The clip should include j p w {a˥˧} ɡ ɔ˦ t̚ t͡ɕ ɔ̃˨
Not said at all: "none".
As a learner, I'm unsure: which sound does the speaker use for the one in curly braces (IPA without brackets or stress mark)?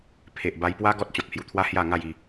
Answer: a˦